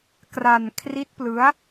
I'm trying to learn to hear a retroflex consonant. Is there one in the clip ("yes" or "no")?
no